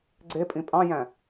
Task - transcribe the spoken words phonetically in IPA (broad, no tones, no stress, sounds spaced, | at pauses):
ɡ͡ǀ e pʼ ĩ pʼ ɑ̃ j æ̃